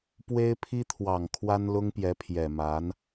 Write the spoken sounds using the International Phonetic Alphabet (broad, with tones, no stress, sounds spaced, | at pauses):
p w e˥ ɪ̯ pʰ i˥ t̪ʰ w ɑ˨˩ ŋ kʰ w a˥ n l ʊ˥ ŋ p j ɛ˧˥ pʰ j ɛ˨˩ m a˧˥ n